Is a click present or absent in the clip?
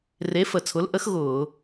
absent